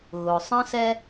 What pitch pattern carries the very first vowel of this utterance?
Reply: low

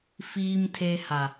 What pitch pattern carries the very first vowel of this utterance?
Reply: low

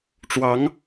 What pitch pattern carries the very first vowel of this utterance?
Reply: rising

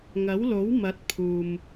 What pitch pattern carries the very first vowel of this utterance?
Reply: rising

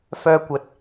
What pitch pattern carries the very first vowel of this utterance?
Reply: high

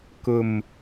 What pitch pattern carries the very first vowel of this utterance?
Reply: low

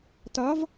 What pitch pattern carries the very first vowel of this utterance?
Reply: rising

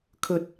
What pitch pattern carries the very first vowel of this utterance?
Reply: rising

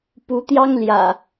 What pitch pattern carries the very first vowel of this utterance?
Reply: rising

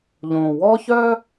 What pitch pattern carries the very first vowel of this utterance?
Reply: low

